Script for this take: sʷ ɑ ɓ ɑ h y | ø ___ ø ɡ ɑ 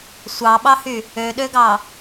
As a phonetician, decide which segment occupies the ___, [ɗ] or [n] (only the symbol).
ɗ